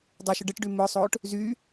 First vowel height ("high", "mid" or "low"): mid